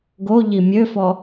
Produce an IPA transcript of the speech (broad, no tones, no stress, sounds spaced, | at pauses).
ɡ o ʎ i mʲ ø f ɔ